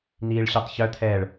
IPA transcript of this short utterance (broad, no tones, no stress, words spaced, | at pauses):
n̪iːɭɕœtˤçœt̪ʰɛːɭ